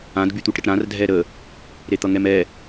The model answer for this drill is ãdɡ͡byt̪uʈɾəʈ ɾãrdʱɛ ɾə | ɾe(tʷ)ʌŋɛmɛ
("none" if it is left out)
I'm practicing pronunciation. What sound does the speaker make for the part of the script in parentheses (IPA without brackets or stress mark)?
t̪